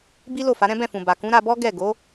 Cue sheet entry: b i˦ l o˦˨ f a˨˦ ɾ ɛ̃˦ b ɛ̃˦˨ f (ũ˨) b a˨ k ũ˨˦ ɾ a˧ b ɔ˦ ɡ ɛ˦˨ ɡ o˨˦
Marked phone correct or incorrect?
correct